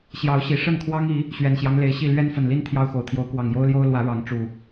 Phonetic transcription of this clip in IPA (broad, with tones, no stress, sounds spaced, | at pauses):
ɕ j ɑ˨˦ ʊ̯ ɕ i˨˩ ʂ ə˥˨ n kʰ w ɑ˦ ŋ i˨˦ | ɕ ɥ ɛ˨˩ n ɕ j ɑ˦ ŋ l e˨˦ ɪ̯ ɕ i˥˨ l ɥ ɛ˦ n f ə˨˩ n l i˦ n t̪ʰ j ɑ˦ ʊ̯ x o˨˩ ʊ̯ t̪ʰ j o˨˦ ʊ̯ k w ɑ˨˩ ŋ j o˦ ʊ̯ l j o˦ ʊ̯ l w ä˨˦ ɻ ɑ˨˦ ŋ ʈ͡ʂ u˨˩